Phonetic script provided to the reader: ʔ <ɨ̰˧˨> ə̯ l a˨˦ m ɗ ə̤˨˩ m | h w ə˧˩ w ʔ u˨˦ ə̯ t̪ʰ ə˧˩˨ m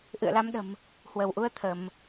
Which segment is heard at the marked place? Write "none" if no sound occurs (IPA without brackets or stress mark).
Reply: ɨ̰˧˨